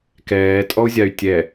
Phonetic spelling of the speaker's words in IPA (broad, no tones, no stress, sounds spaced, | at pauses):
k ɛː tʼ ɔ u̯ zʲ a y̯ tʲ ɛ